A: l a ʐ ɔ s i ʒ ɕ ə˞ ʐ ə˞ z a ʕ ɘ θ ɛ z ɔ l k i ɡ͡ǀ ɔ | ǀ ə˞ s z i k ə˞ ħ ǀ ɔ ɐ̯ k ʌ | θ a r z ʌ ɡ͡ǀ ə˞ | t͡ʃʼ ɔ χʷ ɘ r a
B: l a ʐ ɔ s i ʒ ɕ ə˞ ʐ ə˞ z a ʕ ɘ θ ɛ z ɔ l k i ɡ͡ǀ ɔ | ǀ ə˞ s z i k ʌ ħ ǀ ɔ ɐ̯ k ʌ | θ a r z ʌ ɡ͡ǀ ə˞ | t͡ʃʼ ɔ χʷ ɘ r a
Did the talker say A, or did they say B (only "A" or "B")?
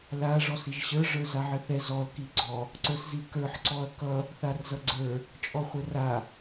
A